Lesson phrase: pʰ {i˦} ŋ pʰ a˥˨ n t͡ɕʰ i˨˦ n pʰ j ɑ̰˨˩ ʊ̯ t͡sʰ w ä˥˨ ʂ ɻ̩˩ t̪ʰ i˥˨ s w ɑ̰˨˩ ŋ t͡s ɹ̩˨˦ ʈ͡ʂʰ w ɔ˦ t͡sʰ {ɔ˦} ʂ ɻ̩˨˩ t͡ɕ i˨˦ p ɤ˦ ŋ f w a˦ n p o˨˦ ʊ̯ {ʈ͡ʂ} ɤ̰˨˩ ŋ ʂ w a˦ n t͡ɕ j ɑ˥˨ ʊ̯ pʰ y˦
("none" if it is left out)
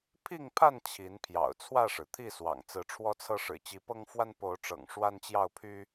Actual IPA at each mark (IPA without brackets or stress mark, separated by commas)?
i˥˨, ɤ˦, ʈ͡ʂ